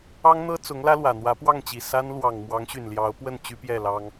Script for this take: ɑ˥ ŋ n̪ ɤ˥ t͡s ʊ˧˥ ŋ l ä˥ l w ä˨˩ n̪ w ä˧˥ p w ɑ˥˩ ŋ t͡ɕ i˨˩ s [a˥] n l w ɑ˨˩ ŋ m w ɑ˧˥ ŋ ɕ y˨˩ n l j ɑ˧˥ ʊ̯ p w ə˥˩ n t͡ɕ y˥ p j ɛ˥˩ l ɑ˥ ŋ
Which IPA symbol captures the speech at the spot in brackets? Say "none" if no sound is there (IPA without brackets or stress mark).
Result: a˥